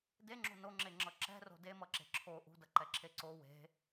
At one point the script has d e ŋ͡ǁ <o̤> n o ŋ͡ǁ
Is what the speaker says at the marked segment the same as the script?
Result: yes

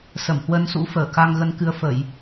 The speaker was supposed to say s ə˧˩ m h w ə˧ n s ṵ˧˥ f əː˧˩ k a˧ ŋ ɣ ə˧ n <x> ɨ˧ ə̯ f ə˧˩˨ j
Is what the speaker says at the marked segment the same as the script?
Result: no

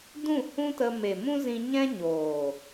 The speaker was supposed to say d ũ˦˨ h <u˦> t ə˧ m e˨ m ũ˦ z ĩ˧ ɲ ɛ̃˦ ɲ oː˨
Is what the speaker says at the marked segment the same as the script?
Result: no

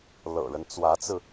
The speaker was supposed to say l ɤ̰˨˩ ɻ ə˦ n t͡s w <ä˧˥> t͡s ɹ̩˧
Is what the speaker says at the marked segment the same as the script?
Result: yes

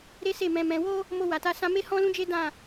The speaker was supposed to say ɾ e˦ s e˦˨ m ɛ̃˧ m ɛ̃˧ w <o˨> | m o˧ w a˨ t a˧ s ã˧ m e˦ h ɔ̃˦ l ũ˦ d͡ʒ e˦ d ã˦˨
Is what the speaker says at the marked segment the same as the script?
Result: no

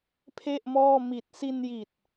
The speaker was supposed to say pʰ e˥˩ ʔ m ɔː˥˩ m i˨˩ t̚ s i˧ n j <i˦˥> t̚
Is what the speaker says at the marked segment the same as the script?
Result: no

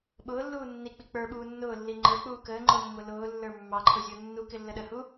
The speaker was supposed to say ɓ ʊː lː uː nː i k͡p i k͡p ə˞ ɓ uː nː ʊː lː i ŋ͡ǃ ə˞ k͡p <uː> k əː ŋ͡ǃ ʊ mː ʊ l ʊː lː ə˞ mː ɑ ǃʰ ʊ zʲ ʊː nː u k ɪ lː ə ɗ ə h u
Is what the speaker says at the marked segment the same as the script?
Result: yes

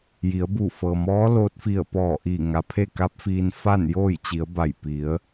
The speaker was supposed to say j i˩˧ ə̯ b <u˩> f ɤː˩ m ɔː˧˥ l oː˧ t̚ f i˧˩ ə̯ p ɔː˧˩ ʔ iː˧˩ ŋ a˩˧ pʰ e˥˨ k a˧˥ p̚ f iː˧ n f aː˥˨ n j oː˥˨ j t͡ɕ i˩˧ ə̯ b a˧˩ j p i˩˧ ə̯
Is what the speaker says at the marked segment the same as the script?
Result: no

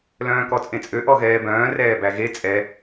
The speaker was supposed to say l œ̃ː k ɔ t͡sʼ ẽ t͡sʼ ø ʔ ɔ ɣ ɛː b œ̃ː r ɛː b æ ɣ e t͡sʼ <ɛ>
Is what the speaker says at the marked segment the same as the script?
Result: yes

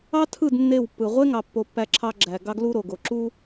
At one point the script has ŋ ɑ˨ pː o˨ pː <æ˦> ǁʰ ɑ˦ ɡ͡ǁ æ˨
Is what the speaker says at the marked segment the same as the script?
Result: yes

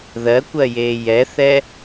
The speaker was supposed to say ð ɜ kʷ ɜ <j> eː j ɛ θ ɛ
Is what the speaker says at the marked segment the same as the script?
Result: yes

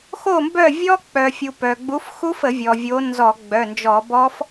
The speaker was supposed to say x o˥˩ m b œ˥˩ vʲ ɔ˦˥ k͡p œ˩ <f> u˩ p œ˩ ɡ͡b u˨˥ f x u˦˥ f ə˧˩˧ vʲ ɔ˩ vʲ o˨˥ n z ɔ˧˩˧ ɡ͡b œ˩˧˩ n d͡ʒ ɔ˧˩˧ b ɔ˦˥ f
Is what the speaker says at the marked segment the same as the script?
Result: no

